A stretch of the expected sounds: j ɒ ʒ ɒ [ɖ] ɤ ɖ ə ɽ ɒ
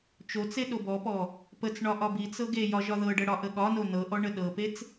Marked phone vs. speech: incorrect: ð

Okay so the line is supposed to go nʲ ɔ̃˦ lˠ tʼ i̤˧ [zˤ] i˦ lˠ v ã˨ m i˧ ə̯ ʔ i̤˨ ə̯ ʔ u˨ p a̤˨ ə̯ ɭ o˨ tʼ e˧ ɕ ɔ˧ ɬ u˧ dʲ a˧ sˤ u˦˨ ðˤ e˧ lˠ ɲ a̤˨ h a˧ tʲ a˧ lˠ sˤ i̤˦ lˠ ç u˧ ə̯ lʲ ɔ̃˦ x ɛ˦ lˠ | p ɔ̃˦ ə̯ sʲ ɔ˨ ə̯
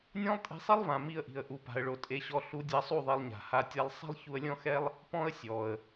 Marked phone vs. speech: incorrect: sˤ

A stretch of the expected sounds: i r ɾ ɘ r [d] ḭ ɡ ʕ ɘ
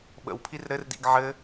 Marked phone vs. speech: correct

